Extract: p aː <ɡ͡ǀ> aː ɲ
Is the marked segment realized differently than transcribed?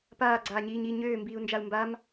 no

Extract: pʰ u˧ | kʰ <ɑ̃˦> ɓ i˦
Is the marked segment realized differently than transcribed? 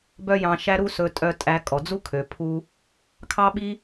yes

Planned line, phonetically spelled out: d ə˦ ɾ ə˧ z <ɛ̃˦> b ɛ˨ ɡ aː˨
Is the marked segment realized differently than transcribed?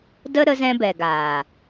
yes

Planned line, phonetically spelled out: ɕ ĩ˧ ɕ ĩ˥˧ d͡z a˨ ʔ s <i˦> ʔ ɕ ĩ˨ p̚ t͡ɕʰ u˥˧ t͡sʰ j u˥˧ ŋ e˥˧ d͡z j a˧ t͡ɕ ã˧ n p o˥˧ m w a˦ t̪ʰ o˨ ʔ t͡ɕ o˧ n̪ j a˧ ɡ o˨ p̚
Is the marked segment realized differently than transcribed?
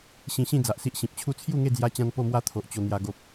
no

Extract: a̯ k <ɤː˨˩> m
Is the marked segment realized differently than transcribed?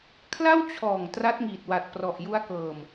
no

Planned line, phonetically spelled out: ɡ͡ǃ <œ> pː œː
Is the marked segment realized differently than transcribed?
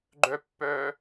no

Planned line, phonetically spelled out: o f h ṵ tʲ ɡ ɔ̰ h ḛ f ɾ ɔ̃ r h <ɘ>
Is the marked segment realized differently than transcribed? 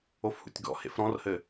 no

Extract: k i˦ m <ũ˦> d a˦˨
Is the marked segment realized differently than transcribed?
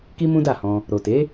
no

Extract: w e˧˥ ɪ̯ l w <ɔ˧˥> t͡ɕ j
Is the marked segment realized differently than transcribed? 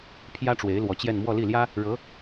no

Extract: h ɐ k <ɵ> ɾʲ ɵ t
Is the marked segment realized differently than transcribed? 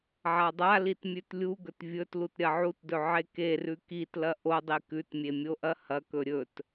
no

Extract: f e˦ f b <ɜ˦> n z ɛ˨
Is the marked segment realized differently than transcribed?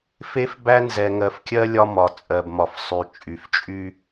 yes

